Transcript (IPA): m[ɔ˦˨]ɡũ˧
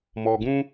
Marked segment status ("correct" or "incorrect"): incorrect